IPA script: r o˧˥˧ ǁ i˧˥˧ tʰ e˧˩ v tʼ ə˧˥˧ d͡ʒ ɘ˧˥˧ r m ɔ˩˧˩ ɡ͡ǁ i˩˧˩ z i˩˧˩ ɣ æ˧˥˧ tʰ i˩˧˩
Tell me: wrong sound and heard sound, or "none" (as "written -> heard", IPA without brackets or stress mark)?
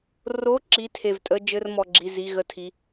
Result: æ˧˥˧ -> ə˧˥˧